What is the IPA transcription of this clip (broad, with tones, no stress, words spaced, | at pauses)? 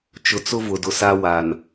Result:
t͡ʃʊ˨t͡sʊ˦ vʊ˨dʊ˨sa˦ wa˨n